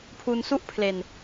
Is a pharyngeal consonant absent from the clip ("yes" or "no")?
yes